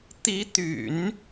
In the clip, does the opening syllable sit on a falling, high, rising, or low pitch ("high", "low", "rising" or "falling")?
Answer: rising